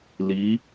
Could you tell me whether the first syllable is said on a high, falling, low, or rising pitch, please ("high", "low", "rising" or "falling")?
rising